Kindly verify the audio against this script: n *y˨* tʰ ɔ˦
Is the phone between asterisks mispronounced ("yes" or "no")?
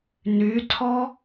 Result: yes